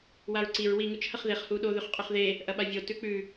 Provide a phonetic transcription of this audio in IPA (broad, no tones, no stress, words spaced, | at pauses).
waɹǀiɹ wi ŋʉt͡ʃhɐχðeχ huɗo ðʉχqʼɵχðe | ʔɐɓavʲo tʉk͡pʉ